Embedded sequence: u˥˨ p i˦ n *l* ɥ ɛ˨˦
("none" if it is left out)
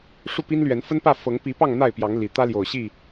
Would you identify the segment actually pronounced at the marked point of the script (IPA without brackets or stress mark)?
l